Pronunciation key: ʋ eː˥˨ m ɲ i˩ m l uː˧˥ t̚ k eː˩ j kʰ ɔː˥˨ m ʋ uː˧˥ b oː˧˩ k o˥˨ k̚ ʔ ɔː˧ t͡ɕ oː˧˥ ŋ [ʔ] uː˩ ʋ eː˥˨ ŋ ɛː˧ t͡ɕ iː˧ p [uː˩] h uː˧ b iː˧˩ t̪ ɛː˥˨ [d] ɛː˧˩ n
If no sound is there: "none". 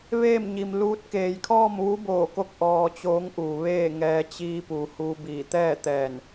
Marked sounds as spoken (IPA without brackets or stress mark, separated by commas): ʔ, uː˩, t̪